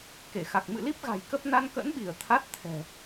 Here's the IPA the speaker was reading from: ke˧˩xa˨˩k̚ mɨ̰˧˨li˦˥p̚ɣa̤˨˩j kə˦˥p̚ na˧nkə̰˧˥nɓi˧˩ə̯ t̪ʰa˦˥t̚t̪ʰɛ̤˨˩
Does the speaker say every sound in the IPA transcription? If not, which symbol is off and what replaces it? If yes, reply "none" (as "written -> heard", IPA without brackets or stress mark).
none